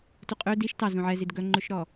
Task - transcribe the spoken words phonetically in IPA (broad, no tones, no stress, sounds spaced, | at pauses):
t u qʼ ø d i ʃ t ɑ z ũ ʕ ɛ z i d ɡ œ ŋ͡ǃ ʉ ʃ ɾ ɔ